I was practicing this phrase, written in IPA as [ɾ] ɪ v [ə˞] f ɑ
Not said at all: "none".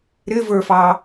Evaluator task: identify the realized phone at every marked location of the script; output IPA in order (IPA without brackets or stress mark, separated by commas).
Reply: ɾ, ə˞